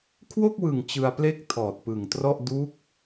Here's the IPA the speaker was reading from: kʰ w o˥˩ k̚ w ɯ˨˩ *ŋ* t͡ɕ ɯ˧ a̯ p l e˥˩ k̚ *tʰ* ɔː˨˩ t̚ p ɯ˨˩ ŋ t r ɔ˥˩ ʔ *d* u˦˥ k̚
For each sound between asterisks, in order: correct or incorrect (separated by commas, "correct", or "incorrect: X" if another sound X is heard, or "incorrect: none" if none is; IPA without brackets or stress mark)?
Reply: correct, correct, correct